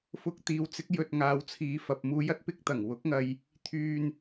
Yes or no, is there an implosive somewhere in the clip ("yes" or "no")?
no